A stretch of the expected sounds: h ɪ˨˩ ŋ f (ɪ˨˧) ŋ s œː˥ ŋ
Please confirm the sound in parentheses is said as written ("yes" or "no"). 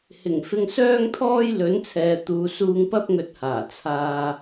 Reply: no